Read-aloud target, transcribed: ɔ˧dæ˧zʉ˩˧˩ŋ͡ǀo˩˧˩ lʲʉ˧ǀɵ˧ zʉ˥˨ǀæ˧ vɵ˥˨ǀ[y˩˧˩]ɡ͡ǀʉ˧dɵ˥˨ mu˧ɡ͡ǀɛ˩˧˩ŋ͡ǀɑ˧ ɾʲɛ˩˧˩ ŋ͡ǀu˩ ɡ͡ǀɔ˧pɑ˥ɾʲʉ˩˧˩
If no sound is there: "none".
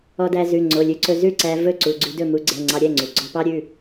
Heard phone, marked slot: u˩˧˩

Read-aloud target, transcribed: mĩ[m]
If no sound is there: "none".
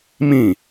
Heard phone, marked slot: none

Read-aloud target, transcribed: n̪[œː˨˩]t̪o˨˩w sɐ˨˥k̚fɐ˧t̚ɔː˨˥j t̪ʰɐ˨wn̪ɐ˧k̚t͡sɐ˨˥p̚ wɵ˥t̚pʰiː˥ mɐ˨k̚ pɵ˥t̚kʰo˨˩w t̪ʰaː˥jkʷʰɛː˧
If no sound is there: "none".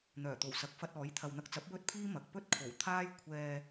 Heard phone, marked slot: œː˨˩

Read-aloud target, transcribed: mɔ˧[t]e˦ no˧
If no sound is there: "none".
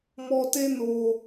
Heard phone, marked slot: t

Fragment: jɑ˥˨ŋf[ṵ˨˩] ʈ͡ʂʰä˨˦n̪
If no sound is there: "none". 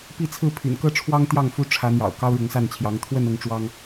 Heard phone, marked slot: u˦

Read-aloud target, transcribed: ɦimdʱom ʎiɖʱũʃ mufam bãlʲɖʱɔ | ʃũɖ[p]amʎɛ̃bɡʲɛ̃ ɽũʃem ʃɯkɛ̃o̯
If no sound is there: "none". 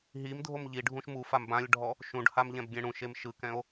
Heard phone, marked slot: h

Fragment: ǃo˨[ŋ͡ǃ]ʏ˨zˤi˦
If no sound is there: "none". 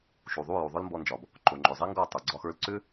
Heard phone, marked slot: ŋ͡ǃ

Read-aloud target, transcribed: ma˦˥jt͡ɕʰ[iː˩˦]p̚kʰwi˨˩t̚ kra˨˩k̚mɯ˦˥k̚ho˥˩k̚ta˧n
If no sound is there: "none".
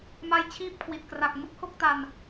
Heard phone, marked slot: iː˥˩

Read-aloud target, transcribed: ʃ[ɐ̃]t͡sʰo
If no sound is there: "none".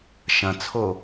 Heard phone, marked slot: ɐ̃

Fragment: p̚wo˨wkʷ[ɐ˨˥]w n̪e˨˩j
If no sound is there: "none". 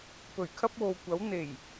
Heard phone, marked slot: ɐ˨˥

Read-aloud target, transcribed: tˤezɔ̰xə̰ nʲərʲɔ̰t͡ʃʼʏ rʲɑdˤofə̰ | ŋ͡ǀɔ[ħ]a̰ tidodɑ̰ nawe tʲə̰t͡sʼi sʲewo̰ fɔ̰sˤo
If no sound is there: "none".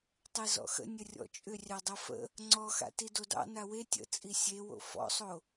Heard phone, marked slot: x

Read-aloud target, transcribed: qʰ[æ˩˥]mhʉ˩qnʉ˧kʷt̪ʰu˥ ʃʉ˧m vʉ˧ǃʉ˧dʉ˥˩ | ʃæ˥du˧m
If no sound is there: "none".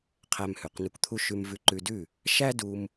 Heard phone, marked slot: æ˧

